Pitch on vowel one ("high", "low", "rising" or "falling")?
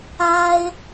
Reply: high